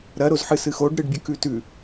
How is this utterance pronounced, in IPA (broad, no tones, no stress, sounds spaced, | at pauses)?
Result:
ɾ ɐ ɾ o z ħ ɨ s ɨ x o ɖ ɾ ɨ ɖ bʲ ɨ k ʉ t ʉ